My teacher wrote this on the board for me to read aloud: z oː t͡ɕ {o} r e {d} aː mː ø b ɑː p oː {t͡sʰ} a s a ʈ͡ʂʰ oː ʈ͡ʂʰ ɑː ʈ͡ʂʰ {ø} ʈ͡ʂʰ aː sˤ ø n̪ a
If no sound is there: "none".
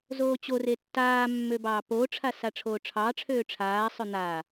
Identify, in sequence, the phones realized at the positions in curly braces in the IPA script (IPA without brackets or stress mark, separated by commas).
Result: o, tː, ʈ͡ʂʰ, øː